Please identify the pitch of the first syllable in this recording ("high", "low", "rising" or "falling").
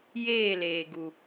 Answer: falling